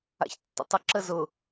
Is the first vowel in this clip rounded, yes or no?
no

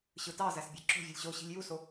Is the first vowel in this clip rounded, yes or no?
no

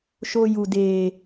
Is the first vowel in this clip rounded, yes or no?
yes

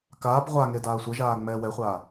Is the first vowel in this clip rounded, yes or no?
no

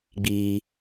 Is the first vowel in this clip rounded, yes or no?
no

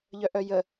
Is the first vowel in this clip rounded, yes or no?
yes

